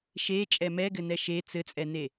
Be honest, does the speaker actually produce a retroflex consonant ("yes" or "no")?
no